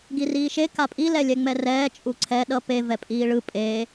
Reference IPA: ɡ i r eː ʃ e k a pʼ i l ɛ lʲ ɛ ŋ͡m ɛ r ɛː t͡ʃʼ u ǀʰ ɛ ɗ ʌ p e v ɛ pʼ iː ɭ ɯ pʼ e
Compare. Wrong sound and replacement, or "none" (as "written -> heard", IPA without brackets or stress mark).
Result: eː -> iː